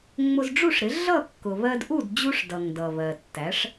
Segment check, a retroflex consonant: present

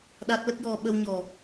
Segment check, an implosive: present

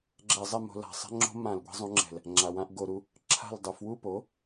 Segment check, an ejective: absent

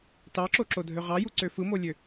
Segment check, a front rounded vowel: present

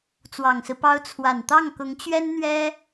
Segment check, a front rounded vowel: absent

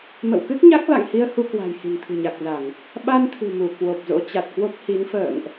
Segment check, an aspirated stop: present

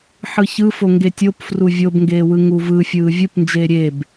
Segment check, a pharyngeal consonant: present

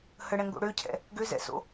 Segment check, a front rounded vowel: present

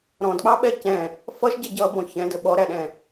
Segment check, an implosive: present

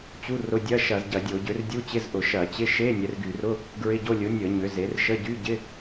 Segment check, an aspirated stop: absent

